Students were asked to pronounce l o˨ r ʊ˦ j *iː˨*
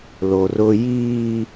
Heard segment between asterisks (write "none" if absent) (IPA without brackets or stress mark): iː˦